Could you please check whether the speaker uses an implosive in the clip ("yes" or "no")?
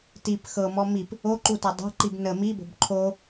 no